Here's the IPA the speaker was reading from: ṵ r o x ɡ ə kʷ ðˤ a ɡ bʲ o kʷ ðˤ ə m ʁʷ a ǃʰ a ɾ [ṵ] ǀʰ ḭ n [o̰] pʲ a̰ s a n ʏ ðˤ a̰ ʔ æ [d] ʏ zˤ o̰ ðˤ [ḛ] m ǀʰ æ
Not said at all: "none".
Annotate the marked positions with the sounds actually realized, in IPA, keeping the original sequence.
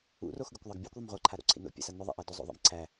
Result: o̰, o̰, d, ḭ

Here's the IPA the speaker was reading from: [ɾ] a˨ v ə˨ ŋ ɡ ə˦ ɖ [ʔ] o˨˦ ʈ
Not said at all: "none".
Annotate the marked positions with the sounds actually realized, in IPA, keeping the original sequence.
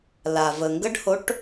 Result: l, h

